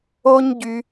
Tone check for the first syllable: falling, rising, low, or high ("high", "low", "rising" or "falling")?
high